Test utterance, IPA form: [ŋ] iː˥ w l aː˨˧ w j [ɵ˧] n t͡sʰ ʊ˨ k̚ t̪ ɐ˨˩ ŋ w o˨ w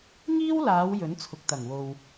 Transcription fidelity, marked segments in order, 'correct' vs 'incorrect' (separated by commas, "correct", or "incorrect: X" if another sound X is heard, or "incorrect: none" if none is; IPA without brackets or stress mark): correct, incorrect: ɵ˨˥